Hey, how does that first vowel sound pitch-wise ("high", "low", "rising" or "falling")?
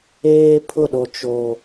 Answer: high